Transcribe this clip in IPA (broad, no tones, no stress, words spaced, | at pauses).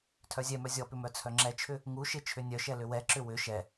tʰœzʲɛmœ zʲɔpʏ mœt͡sʰœŋ͡ǁɛt͡ʃʰʏ | ŋu ʃɪt͡ʃʰʏ nʲœʃɛ lʏwɛǁʏ wʏ ʃɛ